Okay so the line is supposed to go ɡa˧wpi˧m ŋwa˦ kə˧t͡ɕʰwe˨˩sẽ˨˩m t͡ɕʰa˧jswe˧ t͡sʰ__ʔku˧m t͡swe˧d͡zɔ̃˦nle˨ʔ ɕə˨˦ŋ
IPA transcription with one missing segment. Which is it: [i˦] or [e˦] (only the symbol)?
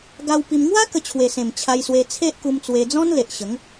e˦